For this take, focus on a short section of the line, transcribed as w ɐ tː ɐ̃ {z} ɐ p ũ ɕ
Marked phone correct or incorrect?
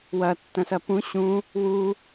incorrect